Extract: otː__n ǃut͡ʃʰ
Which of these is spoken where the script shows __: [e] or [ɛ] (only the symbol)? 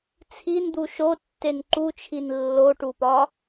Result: e